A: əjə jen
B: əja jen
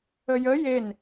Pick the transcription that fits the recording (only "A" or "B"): A